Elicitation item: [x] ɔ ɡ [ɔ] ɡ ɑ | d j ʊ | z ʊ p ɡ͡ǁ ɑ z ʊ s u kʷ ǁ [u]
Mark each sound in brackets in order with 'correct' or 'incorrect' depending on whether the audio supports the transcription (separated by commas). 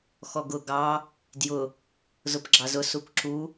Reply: correct, incorrect, correct